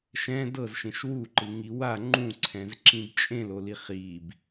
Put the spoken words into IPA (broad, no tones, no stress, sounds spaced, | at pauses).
ʃ ɛ̃ d ɤ z ʃ ẽ ʃ w u ǃ ɯ ŋ i w a ŋ͡ǃ ũ ǀʰ ɛ̃ z ǁ ĩ b t͡ʃʼ ẽ l o l i χ i b